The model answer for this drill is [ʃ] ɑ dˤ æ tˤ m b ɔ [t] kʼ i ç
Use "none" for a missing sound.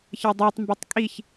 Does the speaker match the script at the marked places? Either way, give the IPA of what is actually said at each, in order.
ç, tˤ

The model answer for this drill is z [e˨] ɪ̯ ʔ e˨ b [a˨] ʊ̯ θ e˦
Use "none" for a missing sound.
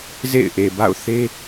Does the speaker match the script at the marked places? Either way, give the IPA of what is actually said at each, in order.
ḛ˦˨, a̰˦˨

